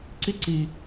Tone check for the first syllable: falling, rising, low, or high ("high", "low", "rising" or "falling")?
high